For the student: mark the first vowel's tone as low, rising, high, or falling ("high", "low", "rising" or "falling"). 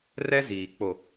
high